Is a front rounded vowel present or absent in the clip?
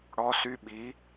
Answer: present